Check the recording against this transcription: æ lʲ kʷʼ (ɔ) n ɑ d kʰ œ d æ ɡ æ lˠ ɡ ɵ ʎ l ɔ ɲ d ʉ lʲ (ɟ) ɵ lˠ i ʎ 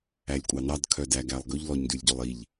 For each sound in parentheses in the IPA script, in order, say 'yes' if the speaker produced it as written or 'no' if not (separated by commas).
no, yes